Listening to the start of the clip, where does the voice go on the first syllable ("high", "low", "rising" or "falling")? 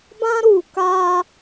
high